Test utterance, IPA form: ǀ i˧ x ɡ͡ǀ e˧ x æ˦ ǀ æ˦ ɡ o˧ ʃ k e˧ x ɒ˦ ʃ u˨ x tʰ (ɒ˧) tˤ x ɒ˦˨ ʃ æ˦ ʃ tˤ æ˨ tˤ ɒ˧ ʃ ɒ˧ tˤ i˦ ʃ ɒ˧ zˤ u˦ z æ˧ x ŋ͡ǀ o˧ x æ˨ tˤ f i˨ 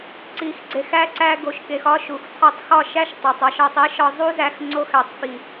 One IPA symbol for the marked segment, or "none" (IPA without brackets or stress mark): ɒ˧